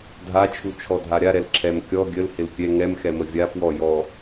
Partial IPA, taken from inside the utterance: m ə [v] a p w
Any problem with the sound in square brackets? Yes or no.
yes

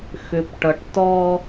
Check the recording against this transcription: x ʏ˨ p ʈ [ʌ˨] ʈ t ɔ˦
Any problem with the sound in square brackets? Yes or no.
no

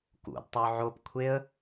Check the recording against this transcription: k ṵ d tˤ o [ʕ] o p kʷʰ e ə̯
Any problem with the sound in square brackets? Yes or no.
no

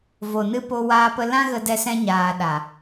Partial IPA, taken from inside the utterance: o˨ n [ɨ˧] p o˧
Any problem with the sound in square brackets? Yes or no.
no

